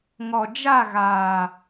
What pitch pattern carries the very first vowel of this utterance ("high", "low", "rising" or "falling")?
low